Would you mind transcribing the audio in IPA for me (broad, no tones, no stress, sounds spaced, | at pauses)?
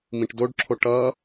m ĩ ʈ d o ɖ ǁʰ o ʈ ʌ